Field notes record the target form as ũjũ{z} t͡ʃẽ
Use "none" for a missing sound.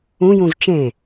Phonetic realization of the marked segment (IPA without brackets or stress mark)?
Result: z